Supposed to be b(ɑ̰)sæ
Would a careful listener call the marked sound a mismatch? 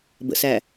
yes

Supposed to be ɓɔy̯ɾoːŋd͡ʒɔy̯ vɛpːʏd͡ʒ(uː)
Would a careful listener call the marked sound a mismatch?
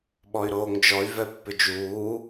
no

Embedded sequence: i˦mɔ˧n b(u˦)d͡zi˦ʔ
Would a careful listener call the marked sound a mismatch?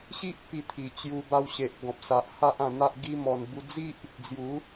yes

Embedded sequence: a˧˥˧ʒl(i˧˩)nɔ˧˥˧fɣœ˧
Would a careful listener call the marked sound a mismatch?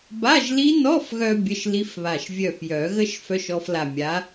yes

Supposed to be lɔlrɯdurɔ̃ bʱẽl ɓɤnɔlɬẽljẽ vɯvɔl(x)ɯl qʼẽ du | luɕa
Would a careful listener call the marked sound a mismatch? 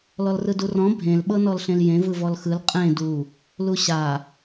no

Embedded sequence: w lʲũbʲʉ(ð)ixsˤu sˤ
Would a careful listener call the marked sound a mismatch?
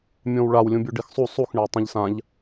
yes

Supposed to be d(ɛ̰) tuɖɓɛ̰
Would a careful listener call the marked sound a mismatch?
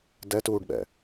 yes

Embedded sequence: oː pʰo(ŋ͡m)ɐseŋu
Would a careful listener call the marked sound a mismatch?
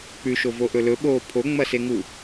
no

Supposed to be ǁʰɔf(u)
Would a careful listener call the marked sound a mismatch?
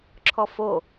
yes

